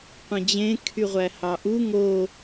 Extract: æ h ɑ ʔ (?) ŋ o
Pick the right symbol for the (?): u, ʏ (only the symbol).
u